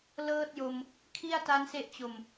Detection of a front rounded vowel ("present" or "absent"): absent